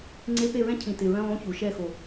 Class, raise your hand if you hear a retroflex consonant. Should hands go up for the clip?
no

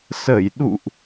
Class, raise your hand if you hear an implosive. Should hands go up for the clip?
yes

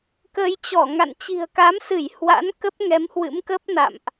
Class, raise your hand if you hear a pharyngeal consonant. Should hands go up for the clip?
no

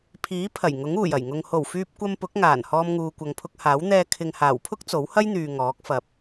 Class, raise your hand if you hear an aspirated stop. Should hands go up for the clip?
yes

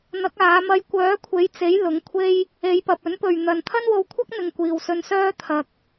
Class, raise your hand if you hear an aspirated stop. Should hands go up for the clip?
yes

